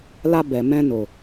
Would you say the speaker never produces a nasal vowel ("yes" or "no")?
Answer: no